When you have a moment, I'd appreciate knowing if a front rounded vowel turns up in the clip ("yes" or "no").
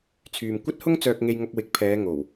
yes